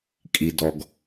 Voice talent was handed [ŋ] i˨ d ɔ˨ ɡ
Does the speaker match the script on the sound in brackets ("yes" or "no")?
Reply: no